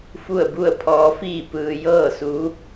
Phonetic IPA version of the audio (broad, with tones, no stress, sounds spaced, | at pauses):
f u˥˨ ə̯ b u˥˨ ə̯ pʰ ɔː˧˥ f iː˥˨ p ɯː˧ j ɤː˥˨ s u˧˥